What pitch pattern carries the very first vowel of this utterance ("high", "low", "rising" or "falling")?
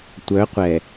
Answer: rising